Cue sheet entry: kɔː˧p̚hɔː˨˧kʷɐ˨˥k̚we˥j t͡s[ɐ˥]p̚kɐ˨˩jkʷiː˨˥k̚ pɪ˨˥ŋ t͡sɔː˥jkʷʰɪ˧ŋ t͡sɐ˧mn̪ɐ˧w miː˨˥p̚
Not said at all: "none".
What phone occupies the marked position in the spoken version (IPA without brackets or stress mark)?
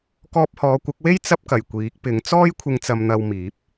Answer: ɐ˥